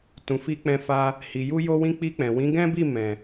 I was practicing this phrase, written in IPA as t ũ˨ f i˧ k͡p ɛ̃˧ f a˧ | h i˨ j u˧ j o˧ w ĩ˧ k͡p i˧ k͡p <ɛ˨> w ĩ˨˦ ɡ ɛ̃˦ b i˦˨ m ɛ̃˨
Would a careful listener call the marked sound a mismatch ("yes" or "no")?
yes